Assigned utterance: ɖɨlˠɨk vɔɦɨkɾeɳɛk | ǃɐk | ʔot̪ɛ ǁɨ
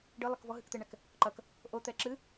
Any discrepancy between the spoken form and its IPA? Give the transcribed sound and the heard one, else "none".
ɾ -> t̪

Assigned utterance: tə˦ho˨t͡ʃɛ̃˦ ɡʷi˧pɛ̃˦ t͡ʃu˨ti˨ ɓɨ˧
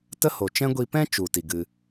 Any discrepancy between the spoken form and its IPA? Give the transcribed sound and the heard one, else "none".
ɓ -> ɡ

